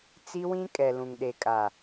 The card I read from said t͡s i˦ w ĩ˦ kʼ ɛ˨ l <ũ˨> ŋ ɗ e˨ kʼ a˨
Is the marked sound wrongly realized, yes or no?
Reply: no